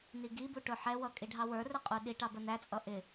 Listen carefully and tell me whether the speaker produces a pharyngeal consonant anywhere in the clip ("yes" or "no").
yes